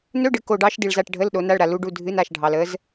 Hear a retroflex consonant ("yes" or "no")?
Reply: yes